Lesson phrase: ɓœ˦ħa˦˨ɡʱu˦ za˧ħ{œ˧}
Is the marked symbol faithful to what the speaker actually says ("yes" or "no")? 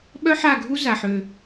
no